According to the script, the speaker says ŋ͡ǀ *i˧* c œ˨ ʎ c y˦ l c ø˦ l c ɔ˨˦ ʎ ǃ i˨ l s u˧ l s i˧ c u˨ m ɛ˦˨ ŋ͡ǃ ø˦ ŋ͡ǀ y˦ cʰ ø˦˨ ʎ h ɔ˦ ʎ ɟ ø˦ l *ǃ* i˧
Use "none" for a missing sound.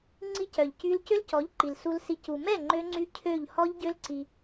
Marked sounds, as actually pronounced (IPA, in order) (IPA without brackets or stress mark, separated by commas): i˧, ǀ